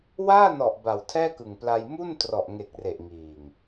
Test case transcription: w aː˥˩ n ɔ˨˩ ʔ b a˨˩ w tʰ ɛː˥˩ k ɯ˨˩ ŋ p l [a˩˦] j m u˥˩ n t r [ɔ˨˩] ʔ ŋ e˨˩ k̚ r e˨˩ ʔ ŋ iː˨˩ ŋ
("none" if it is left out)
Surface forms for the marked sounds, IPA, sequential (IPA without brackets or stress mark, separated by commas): a˧, ɔ˨˩